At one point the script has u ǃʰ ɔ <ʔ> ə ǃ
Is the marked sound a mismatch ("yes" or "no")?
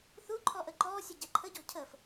no